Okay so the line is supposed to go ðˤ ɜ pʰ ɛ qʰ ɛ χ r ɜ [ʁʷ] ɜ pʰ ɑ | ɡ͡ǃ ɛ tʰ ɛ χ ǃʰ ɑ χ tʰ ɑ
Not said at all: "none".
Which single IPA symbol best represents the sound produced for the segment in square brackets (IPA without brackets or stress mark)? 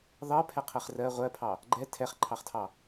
ʁʷ